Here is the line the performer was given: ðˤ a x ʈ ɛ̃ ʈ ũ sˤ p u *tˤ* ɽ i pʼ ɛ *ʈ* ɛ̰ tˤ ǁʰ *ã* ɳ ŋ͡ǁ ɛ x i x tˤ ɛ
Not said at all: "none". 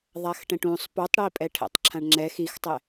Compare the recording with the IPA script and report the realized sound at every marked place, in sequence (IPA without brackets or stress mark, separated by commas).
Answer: tˤ, ʈʰ, ã